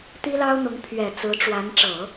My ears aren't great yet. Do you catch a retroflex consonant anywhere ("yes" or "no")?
yes